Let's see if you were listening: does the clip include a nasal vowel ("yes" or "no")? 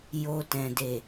yes